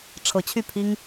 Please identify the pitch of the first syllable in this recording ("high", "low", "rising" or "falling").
rising